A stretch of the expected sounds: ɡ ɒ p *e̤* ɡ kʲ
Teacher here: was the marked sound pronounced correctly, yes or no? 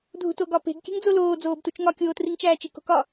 yes